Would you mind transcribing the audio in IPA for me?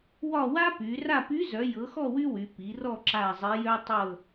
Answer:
wɒ˦˨wa˥py˩˧ ra˦˨py˧˥zœ˩˧ jɤ˩˧xɔ˦˨ wy˥wy˩˧ pi˩˧rɔ˦˨ ǁa˦˨zˤe˧˥jœ˥ tˤɤ˦˨

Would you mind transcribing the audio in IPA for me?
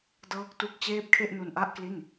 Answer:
dɤː˦˥k̚tu˦˥k̚ t͡ɕeː˦˥p̚kʰe˥˩ʔ nu˧nʔa˥˩ʔkli˥˩n

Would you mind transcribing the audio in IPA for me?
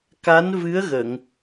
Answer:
ka˧˥nvɨ˧˥ə̯ɣə˨˩˨ŋ

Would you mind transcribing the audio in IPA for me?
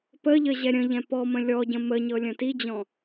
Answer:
pəʎə ʑɛɾʲə̃ʎɛ̃ pɔmə̃ lʲɔɟə̃ məɲɤ lʲə̃tid͡ʑɔ̃

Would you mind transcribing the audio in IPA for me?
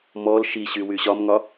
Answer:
mɔl ʃiɕy wyɕɒmŋɒ

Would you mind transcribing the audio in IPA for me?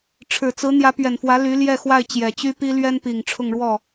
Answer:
ʈ͡ʂʰɻ̩˨˩t͡sɹ̩˧˥ n̪jä˧˥ pɥɛ˨˩nfwä˧˥ ly˧˥ ljɛ˥˧xwa˥˩ɪ̯ t͡ɕjɛ˨˩t͡ɕy˥pi˥ lɥɛ˥npi˨˩ŋ ʈ͡ʂʰʊ˥˧ŋɻwɔ˥˩

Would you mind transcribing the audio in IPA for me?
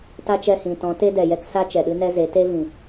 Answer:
ta˦t͡ʃɛ˧hĩ˨tɔ̃˨˦ te˦dɛ˨jɛ˦ksa˦ t͡ʃɛ˨ɗɨ˦nɛ˦ze˨˦ te˦vĩ˨

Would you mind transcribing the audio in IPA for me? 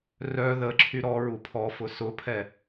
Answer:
rœ ðə ǁʰyɾɔɹu pʰɔfʊ sʊpʰɛ

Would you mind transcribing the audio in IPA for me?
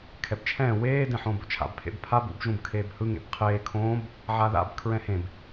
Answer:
kʰɛbt͡ʃʰɛ̃ː weː dẽħõːbo̰t͡ʃʰa̰b pʰḛbpʰab ṵb ʒũbkʰeːbhɯ ŋḛbqʰeː kʰõːb | ʕaða̰b kʰɹɛ̃hẽb

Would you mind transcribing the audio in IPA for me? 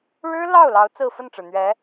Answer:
ɻɻ̩˥lɑ˥˩ʊ̯lɑ˧˥ʊ̯ t͡sɹ̩˥˧fə˥˩nʈ͡ʂɻ̩˩n̪ɥɛ˧˥

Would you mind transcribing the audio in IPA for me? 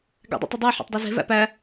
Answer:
ɡæ̰dˤṵtˤədˤæ ħo̰tˤdˤeze̤ væ̰pæ

